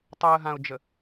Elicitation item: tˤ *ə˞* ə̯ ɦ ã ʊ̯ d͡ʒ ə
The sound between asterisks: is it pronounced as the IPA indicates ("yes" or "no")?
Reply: no